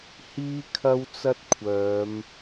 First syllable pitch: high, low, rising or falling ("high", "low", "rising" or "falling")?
high